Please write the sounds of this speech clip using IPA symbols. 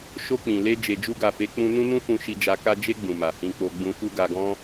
ʃo˧k͡pĩ˨le˧ d͡ʒe˨d͡ʒu˧ɡa˨fe˨˦ k͡pũ˧ nũ˦nũ˦fũ˧ʃi˧ d͡ʒa˧ka˦ d͡ʒe˧ ɡ͡bũ˨ma˨ hĩ˧k͡po˧ ɡ͡bũ˧fu˦ɡa˧ɡɔ̃˦

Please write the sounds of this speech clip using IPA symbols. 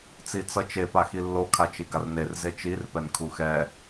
t͡sit͡sʌt͡ʃe paxilːo kʰat͡ʃiɡarner zet͡ʃir pɛnkʰuxɛ

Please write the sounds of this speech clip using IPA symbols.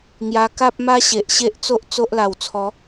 ŋja˧ka˦p̚ma˦ɕe˨ʔ ɕe˦ʔt͡so˦ʔ t͡so˦ʔla˨˩w t͡sʰɔ˨˦

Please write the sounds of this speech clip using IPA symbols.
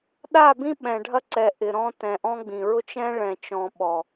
ɗa˦˨bĩ˦ ɓɛ̃˨ɖʱɐ˦ǀɛ˨ ʔɪ˨ɾɔ̃˦ tɛ̃˨ʔɔ̃˦ɡ͡bĩ˨ ɹʊ˦t͡ʃɛ̃˦ ɭɛ̃˨t͡ʃɔ̃˨ ɓɔ˨

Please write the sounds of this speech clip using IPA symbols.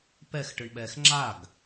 pɛxʈɯɳɓɛːx ŋ͡ǁaɡ

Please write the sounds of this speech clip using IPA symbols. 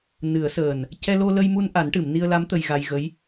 nɨ˨˩˦ə̯səː˨˩n | cɛ˧lo˧lə˧jmu˧n ʔa˨˩˦nʈɨ˨˩˨mni˧ə̯la˧˥m t̪ə˧jɣa˧jɣə˧˥j

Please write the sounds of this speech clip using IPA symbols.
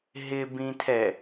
ɦɪ bĩtʰɛ

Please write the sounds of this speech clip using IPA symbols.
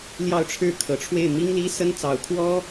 ljɑ˥˧ʊ̯ʈ͡ʂʰɻ̩˥˩kʰɤ˨˩ʈ͡ʂʰwe˥˩ɪ̯ mi˥ŋli˥sə˥n t͡sɑ˨˩ʊ̯kʰwɔ˥

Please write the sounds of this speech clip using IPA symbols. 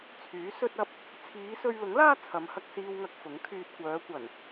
t͡sʰyː˨˥sɵ˥t̚ɐ˥p̚ | t͡sʰiː˨˧sɵ˧ɥlʊ˨˥ŋlaː˥ t͡sʰɐ˨˧mhɐ˧k̚ siː˧wŋɐ˧k̚ fʊ˨˥ŋ kʰyː˧t̚ kʷœː˨˧kʷɐ˨˩n

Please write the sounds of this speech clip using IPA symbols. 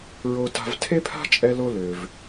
ɹo˧ta̤˧v tʰe˥pʰa̤˥t͡ʃʼɛ˧lo˧ lø˩v

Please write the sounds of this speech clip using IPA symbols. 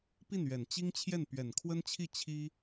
pi˥˩nɥɛ˨˩nt͡ɕi˥ŋ t͡ɕʰjɛ˥˩npɥɛ˨˩nkʰwə˥nt͡ɕʰi˥˩ t͡ɕʰi˥

